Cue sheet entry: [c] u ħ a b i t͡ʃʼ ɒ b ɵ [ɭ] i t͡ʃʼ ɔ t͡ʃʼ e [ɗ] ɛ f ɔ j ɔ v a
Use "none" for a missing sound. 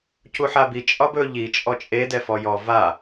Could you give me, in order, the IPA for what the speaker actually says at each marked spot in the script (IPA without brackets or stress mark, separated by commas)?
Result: c, ʎ, d